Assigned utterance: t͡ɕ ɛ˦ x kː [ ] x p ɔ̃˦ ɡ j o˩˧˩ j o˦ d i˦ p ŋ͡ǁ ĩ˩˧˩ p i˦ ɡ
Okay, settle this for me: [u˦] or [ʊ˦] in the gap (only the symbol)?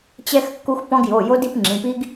u˦